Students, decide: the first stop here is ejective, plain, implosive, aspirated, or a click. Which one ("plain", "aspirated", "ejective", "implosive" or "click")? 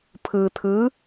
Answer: aspirated